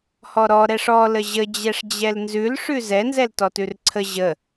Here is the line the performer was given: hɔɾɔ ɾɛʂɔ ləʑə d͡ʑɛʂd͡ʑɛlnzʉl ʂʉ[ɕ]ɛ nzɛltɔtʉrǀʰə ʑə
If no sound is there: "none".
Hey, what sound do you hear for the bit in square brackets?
z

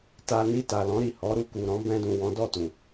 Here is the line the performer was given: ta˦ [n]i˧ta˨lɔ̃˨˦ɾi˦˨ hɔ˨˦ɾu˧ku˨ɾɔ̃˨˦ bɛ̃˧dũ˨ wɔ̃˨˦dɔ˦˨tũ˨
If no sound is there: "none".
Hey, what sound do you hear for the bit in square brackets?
n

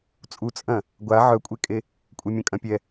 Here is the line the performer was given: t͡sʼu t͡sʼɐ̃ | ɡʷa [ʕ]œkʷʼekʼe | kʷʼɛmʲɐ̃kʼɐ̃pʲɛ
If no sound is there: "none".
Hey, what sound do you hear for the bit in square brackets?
ʕ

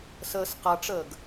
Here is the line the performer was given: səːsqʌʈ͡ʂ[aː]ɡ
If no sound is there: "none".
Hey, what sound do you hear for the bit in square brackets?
əː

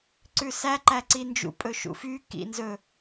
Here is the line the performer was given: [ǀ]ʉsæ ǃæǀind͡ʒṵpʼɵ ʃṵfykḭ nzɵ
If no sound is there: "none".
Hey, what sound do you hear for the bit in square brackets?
ǀ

